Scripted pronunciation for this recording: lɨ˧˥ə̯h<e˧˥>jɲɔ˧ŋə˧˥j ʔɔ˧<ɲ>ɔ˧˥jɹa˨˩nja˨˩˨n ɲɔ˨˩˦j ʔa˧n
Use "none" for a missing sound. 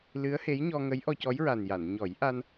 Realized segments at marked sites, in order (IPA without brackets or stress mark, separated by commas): e˧˥, c